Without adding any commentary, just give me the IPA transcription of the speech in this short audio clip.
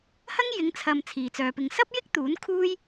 h ɐ˥ ŋ j ɪ˨˧ ŋ t͡sʰ ɐ˨ m t͡sʰ iː˨ t͡s œː˧ p ɪ˧ ŋ s ɐ˥ p̚ j ɪ˥ k̚ t̪ uː˨˥ n kʰ uː˥ j

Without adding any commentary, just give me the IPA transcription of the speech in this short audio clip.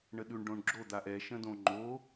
ɳ ə ɗ ʉ ɳ ɖ õ ɳ ɡ͡ǁ o d̪ a ʔ ɛ ʃ ə̃ d õ ŋ͡ǃ o

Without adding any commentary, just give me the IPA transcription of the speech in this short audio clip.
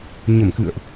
ɲ ə˧˩ m k ɨ̰˧˨ ə̯ ʔ

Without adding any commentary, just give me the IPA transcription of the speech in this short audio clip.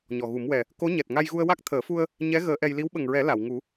ɲ ɔ˨˩ ɣ u˨˩˦ m w ɛ˨˩ | k o˧˥ ɲ ɛ˨˩ t̚ ŋ a˧ j ɣ u˧ ə̯ w a˦˥ k̚ t̪ʰ əː˨˩˦ f u˧ ə̯ | ɲ ɛ˧˥ ɣ əː˧˥ ʔ ɛ˧ j l i˧˥ w ɓ ə˨˩ ŋ ɹ ɛ˨˩˦ l a˨˩˨ w ŋ u˨˩˦

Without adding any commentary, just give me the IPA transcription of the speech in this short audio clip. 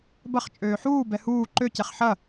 b ɐ χ t͡ʃʼ øː ħ uː b ɛ h uː ǃ ø c ɛ χ ħ ɐ

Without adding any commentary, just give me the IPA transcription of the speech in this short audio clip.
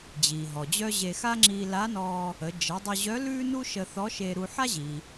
d͡ʑ iː˩ ɦ ɔ˩ d͡ʑ œ˥ ʑ e˧ x a˥ ŋ͡ǁ iː˧ l a˧˥ n ɔː˧ | ə˩˧ d͡ʒ ə˩˧ dˤ ʊ˧ ʑ œ˧˥ l ʉː˥ n u˥ ʃ ə˧ θ ɔ˧˥ ʃ e˧ ɾ u˧ ħ a˥ ʑ iː˩

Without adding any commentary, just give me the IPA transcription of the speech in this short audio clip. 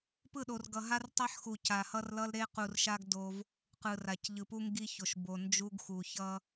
p ɯ˦˨ ɗ o˨ r ɡ ʌ˨ ɦ a˦ r tˤ ɛ˦ ħ x u˨ c a˨ h ʌ˦ r l ʌ˦ l ɾ e˦ q u˨ r ʃ a˦ ɡ d o˦ v | q ɯ˨ r a˨ c ʎ ɯ˨ p u˦ ŋ ɡ i˦ ç o˨ ʃ b o˨ n d͡ʒ u˦ ɡ x u˨ ç ʌ˦

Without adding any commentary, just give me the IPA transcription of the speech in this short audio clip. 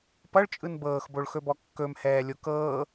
p ʌ ɭ t͡ʃʼ ɯ n b ɤː x b o ɭ x ɵ b ɔ kː ɵ m h ɛː lʲ o k ɤː

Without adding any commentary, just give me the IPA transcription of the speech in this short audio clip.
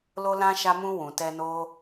l o˧ l ã˧ ʃ a˧ m ũ˧ w ũ˨ t ɛ˧ n o˧

